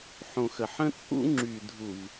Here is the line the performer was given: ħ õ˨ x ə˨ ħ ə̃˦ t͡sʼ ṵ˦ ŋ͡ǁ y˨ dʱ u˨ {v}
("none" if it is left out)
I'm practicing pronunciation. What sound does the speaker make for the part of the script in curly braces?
v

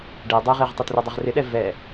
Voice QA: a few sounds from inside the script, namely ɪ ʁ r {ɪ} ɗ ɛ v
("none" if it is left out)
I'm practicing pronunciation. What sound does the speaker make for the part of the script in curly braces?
ɪ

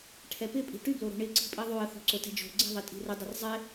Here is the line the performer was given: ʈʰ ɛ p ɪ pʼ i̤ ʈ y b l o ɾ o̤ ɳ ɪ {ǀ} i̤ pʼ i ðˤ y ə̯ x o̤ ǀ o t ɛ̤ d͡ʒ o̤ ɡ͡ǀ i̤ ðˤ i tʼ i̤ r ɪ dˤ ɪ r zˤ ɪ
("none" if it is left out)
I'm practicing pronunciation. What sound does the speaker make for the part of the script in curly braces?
ǀ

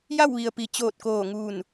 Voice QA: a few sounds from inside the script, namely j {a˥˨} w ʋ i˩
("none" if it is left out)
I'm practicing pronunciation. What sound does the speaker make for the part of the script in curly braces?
a˥˨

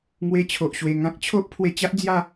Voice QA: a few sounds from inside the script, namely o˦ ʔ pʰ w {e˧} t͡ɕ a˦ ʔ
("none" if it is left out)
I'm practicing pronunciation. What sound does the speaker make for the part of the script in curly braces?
e˧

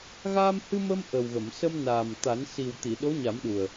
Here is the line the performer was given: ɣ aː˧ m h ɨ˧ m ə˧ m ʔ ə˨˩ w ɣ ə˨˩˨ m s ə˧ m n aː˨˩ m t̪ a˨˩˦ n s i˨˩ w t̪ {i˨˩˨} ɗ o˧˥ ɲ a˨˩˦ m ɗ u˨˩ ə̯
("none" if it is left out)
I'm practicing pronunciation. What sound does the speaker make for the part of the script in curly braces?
i˨˩˨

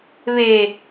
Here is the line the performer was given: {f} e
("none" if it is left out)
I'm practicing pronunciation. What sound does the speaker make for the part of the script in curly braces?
β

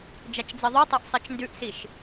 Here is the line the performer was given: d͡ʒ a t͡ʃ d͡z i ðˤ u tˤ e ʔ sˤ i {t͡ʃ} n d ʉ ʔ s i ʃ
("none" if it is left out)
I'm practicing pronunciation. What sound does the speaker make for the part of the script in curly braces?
t͡ʃ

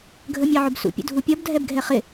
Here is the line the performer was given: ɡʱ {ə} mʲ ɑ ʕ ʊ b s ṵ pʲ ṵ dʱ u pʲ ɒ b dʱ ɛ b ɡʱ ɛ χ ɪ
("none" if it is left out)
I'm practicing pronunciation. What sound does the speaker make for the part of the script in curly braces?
ə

